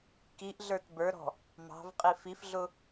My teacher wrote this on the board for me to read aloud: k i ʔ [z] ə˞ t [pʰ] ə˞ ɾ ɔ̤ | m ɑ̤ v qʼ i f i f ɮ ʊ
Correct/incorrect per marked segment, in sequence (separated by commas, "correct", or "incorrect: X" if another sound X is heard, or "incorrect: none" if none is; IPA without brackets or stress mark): incorrect: ɮ, incorrect: b